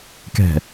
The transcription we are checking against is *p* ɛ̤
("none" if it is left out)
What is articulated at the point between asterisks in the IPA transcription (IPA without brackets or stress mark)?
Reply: k